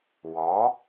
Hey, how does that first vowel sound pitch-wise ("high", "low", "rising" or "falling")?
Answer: rising